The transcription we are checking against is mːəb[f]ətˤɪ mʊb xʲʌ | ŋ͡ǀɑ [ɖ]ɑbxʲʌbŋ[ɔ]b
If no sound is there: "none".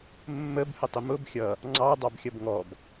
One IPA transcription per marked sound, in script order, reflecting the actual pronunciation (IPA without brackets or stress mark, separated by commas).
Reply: h, dˤ, ɔ